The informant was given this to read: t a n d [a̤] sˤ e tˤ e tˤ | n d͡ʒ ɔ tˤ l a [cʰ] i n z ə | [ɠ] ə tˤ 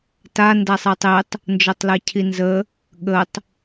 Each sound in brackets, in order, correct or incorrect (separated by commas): incorrect, correct, correct